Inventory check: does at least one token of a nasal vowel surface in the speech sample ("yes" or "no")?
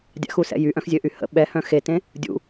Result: yes